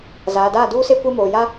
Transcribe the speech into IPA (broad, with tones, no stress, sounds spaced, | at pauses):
z aː˨ d aː˦˨ d uː˦ s e˦ kʷ e˦ m oː˨ j a˦